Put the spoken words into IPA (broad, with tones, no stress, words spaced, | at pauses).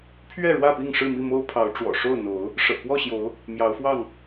pʰɥɛ˥˨ɻwä˥˨pi˥˨ŋʂɻ̩˥˨ mi˥˨mo˦ʊ̯pʰɑ˨˦ʊ̯ ʈ͡ʂwɔ̰˨˩ʂo˥˨ʊ̯n̪o˨˦ʊ̯ | ʂɤ̰˨˩kwɔ˥˨ɕjo˨˦ʊ̯ | mjɑ˨˦ʊ̯fwɑ˥˨ŋ